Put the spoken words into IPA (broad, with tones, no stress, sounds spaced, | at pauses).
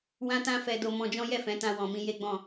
w ã˦ t ã˦ f ɛ˦ d o˧ m ɔ̃˧ d͡ʒ ɔ̃˦ j ɛ˦˨ f ɛ̃˨˦ t ã˧ w ɔ̃˨ m ĩ˧ j e˦ ɡ͡b ɔ̃˦˨